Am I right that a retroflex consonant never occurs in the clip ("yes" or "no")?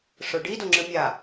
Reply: no